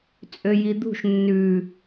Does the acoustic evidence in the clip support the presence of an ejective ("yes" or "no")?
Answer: yes